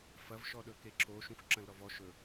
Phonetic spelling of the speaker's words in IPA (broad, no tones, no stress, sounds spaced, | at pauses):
f ɐ v ʃ ɔ ɗ ɵ k e ǁ o ʃ ũ xʷ ǁ ɐ̃ l ɾ ɔ v ɔ ʃ ɵ